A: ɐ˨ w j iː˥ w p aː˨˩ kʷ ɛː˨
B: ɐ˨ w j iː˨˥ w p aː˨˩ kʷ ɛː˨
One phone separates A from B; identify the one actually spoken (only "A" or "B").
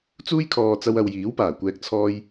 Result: B